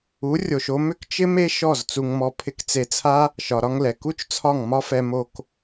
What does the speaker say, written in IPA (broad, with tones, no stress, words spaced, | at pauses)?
u˨˦ rʲo˧ʃo˦ mʏ˦kt͡ʃɪ˦me˦ʃɔ˦˨z t͡su˧ŋmɔ˧ pʰɪ˧kt͡se˧t͡sʰa˦ | ʃɒ˨ɾɒ˧ŋlɛ˨ ku˦t͡ʃt͡sʰɒ˦˨ŋ mɒ˦fɛ˧ mo˧k